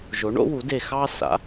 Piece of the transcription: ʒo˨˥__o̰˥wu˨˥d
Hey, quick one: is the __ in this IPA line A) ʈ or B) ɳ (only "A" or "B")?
B